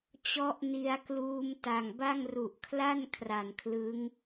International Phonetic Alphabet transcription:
t͡ɕ ɔ˦˥ ʔ n i˧ a̯ k l uː˧ m t a˨˩ ŋ b a˥˩ ŋ r u˨˩ ʔ kʰ l a˥˩ n kʰ r a˨˩ n kʰ l ɯ˦˥ ŋ

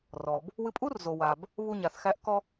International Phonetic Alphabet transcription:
r ɔ˩ b | w ɨ˧ pʼ u˥ r z o˩ w a˩ b | β u˧ ɲ a˩ θ x æ˧ ʔ k ɔ˧

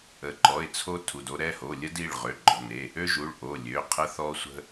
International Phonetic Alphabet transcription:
ə˩˧˩ ǃ ɔ˩˧˩ ɪ̯ t͡sʰ o˦ tʰ u˩˧˩ d o˦ ɾ ɛ˩˧˩ h o˩˧˩ lʲ ə˦ d i˩˧˩ ɭ ʁ ø˩˧˩ ɡ͡ǃ ɔ̤˩˧˩ n e˩˧˩ | ø˦ ʒ u˩˧˩ ɭ ʔ o˩˧˩ lʲ ø˩˧˩ qʰ ə˦ θ ɔ˦ sʷ ə̤˦

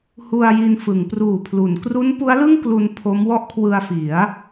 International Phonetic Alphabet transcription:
h u˧ a̯ j i˧ n f ɯ˩˦ ŋ p r uː˨˩ pʰ l u˩˦ n k r u˦˥ n p u˦˥ a̯ l ɯ˥˩ ŋ k l u˧ n pʰ o˦˥ m w ɔ˥˩ ʔ kʰ w ɯ˧ a̯ f i˩˦ a̯

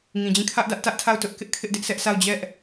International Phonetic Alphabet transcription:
ŋ ĩ˨ d͡ʑ ĩ˦˨ kʰ ä˦ ʔ d ä˦ ʔ t ä˦ ʔ tʰ a˦˨ ʊ̯ t ʊ˦ ʔ k ɪ˦ ʔ kʰ ɪ˦ ʔ d ɪ˦ ʔ sʰ ɛ˦ ʔ sʰ a˦˨ ʊ̯ d͡ʑ ɛ˦ ʔ

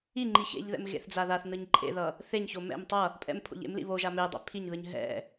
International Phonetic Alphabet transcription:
i ŋ͡ǃ i ç ḛ ʎ ð ɛ̰ m ɣ ḛ θ d͡z a ð a θ n ɯ ɲ ǃʼ ḛ ð ʌ | θ e ɲ ç o m ɛ̰ m tˤ ʌ | pʼ ɛ̰ m pʰ o̰ ʎ ḛ m l ḭ β o ʒ a m e dˤ ḛ pʰ i ɲ ð ɯ ɲ ɦ ɛ̰

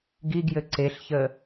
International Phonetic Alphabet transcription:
ɡ i ɡ j ɘ ǀ e ɬ ç ə

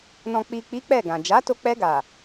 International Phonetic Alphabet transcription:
n ɔ̃˨ k͡p i˨ k͡p i˨˦ k͡p ɛ˦˨ ɡ ã˨ d͡ʒ a˨˦ t o˧ k͡p ɛ˧ ɡ a˨

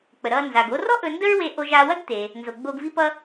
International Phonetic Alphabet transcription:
k͡p ə˩ ɾ ʌ˧ n z a˩ ɡ o˧ r ɔ˥ ʔ ɵ˧ n d ə˥ ɹ w e˧ ʔ o˧ ʒ a˧ w ɐ˥ ɡ t̪ e˩ | n z o˩ ɡ͡b o˧ ɡ v i˥ p ʌ˥

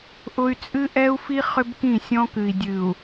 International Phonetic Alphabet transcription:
ʔ ʊ˦ y̯ t͡sʼ ɨ˦ ʔ ɛ˦ u̯ f i˦ χ ʏ˦ b k ĩ˦˨ sʲ ɔ̃˦ k ɨ˨ i̯ dʲ ɨ˨ u̯

